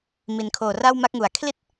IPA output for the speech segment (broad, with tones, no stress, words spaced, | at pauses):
mi˩˦n kʰoː˨˩ra˥˩wma˦˥k̚ŋu˩˦a̯ kʰli˦˥t̚